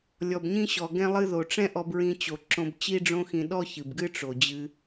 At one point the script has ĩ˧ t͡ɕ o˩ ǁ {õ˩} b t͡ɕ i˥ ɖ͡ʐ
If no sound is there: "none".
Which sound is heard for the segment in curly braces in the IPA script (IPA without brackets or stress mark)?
õ˧